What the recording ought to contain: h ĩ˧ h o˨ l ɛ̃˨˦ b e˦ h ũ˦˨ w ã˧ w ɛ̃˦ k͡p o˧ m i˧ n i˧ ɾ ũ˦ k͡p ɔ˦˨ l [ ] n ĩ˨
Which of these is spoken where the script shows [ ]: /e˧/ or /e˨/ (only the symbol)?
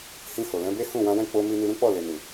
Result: e˨